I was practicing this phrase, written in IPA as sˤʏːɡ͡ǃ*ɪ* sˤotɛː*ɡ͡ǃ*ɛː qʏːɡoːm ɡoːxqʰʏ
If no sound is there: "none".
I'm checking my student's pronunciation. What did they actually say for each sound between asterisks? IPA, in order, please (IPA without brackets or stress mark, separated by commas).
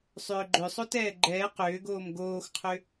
ʏ, ɡ͡ǃ